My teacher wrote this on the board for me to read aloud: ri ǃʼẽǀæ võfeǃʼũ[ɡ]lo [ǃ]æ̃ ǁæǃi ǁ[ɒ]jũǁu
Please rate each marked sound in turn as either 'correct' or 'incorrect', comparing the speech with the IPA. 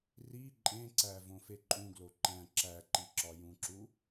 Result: correct, correct, correct

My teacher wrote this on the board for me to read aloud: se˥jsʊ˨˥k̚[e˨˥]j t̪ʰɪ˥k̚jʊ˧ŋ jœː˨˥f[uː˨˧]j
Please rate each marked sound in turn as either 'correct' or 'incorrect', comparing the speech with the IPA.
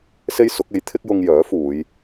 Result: correct, correct

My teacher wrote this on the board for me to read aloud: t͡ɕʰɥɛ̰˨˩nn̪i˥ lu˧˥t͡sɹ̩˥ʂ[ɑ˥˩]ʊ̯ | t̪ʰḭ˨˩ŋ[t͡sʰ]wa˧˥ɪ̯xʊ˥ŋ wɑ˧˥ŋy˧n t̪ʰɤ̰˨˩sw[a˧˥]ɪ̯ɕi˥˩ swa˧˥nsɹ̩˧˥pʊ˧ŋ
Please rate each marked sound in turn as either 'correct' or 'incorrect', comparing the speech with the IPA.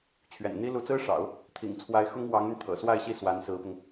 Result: incorrect: ɑ̰˨˩˦, correct, incorrect: a˥˧

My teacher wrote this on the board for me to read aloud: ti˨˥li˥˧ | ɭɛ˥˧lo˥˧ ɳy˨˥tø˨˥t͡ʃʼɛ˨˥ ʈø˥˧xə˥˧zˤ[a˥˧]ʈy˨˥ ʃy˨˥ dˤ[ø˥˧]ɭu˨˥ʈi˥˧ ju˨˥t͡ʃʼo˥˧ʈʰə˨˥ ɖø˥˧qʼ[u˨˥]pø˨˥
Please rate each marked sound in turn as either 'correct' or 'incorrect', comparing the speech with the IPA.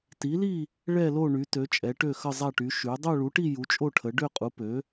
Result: correct, correct, correct

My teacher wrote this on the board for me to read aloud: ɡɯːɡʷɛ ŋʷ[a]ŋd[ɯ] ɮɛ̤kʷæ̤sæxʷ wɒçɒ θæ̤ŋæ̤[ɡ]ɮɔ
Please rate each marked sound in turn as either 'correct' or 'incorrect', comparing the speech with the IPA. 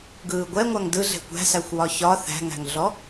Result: correct, correct, incorrect: ŋ

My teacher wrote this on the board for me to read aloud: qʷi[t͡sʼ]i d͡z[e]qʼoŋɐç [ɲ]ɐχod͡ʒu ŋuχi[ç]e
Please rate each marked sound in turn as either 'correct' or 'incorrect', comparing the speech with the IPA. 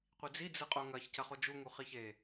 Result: incorrect: d͡z, incorrect: ɨ, incorrect: c, correct

